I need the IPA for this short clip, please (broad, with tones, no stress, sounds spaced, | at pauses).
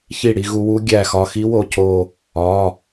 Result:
ç i˧˩ ɽ i˧ ɣ u˧ w u˦˥ ɡʲ æ˧˩ x ɒ˧˩ x i˦˥ w o˧˩ cʰ o˧˩ | ɒ˩˧˩